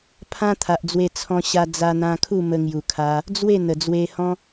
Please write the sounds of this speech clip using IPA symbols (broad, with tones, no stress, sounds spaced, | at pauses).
pʰ ã˦ t̪ʰ a˨ ʔ d͡z w e˧ t͡sʰ ɔ̃˧ ɕ a˧ d͡z a˧ n̪ ã˧ kʰ u˥˧ m ə˧ ŋ j u˨˩ kʰ a˧ | d͡z w e˥˧ n̪ ə˨˩ d͡z w e˧ h ɔ̃˦